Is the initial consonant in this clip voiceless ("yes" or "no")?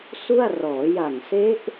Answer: yes